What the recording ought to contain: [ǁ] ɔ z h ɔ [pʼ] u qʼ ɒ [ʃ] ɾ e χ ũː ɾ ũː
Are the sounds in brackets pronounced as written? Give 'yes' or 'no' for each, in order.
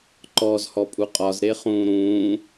no, yes, no

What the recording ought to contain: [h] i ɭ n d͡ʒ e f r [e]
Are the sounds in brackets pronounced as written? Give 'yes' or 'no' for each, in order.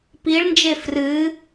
no, no

